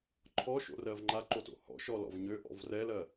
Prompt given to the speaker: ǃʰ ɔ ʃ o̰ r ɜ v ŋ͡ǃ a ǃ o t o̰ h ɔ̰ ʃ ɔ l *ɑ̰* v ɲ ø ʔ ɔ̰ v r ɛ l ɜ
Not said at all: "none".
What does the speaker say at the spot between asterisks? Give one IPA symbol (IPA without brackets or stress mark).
ɔ̰